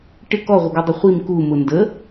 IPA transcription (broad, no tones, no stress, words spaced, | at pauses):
ʈɪ kɔʁʷəɡɔdˤʊ χʷim kumʊ ndə